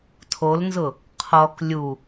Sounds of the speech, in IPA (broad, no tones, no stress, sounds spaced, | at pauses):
tʰ o l n z ʊ | qʰ ɔ k lʲ u